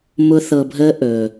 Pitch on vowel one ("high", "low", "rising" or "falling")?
high